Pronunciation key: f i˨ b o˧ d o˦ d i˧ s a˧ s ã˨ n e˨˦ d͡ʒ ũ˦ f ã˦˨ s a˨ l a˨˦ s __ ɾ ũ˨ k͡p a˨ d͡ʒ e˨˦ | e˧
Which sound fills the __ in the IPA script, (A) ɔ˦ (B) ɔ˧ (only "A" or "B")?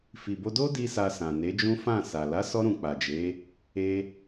B